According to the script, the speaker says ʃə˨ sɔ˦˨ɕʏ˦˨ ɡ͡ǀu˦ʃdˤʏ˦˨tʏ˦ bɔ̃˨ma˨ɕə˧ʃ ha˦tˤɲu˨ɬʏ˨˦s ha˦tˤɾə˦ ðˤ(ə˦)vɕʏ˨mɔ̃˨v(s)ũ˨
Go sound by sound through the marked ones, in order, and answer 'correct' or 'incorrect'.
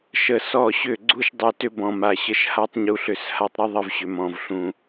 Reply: correct, incorrect: ɬ

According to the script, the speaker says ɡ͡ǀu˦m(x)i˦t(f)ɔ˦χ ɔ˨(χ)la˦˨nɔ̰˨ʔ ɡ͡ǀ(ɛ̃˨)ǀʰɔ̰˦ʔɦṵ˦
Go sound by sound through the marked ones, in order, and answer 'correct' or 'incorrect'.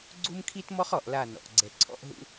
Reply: incorrect: kʰ, incorrect: m, incorrect: ʔ, incorrect: ɛ˨

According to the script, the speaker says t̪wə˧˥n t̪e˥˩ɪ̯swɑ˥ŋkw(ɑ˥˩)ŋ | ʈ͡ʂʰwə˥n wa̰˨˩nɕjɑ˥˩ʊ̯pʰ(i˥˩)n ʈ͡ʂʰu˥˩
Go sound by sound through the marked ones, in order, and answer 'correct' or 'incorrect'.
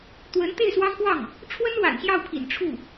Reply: correct, incorrect: ḭ˨˩

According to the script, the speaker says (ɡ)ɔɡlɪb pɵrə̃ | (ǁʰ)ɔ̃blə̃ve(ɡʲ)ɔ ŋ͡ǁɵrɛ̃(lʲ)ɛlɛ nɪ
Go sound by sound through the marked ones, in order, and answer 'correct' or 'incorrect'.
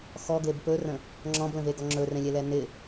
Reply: incorrect: x, incorrect: ŋ͡ǁ, incorrect: ɡ, correct

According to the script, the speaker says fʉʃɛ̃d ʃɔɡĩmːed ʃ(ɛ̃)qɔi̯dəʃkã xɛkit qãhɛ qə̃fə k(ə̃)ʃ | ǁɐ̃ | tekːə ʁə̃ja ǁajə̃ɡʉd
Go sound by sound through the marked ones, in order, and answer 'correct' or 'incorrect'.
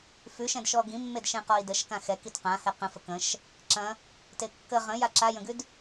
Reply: correct, correct

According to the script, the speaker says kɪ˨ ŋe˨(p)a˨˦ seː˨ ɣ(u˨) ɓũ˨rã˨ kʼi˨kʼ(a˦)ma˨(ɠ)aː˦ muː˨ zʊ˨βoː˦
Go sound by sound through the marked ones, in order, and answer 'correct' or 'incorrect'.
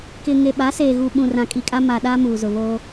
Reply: incorrect: ɓ, correct, correct, incorrect: ɗ

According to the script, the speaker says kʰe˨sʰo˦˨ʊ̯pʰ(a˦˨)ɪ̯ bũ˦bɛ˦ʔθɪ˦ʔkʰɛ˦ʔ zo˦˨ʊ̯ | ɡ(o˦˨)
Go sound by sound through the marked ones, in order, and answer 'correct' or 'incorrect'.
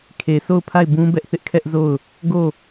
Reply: correct, correct

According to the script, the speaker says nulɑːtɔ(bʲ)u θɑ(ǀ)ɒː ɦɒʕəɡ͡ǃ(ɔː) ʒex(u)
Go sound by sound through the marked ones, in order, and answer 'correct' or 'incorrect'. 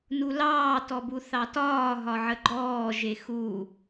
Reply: incorrect: b, incorrect: t, correct, correct

